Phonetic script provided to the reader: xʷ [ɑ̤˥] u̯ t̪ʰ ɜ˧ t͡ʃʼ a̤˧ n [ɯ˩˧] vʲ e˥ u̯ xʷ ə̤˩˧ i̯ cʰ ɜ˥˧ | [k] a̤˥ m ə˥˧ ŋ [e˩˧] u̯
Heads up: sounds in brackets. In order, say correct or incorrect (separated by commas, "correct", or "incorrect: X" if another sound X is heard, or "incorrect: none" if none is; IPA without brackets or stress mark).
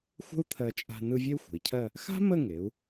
incorrect: ə̤˥, incorrect: ɯ˧, incorrect: x, correct